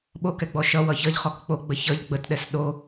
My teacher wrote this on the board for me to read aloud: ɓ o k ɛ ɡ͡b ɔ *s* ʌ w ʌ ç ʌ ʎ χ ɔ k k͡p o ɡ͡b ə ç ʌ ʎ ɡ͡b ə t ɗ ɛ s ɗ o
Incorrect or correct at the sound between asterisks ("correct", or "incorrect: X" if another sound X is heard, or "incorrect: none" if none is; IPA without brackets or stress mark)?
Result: incorrect: ʃ